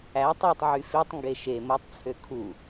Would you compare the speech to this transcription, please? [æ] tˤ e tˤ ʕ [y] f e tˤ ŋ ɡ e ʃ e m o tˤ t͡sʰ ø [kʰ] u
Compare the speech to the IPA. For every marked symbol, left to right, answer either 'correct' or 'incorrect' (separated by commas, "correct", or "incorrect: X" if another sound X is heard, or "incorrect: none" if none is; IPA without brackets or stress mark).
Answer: correct, correct, correct